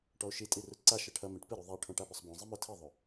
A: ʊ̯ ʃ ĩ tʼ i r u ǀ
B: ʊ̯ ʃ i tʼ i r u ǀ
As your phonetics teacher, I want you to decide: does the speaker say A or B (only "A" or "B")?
B